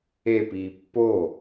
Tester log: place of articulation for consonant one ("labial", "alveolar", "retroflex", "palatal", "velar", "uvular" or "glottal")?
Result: labial